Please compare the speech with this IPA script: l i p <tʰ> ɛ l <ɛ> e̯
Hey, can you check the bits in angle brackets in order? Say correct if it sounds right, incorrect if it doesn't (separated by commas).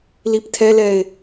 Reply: correct, correct